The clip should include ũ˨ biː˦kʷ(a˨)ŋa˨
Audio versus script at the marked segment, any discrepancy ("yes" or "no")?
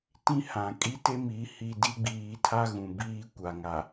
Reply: no